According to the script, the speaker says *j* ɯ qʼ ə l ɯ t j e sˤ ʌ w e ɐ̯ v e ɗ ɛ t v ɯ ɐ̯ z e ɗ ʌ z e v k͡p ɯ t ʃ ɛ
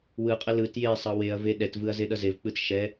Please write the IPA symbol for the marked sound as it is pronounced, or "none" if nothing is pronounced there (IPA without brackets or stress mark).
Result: w